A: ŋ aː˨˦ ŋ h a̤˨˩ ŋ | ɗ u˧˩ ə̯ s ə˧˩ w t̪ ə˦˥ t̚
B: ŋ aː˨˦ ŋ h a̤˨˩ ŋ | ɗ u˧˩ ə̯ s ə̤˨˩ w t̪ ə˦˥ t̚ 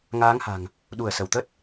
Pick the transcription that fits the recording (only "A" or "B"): A